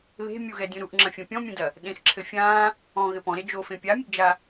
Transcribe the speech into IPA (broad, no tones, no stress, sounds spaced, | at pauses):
β e̤ mʲ u ɣ ɛ dʲ ũ ɾ u ʔ ŋ͡ǁ ɐ̃ fʲ ɐ̃ pʲ ɔ̃ mʲ ũ d ɐ | ɗ ẽ x ǁʰ ɘ fʲ ã | ɔ̃ ɣ ɘ p ɔ̃ ɾ e d͡ʒ o f ẽ pʲ a mʲ ɨ ɡ d͡ʒ a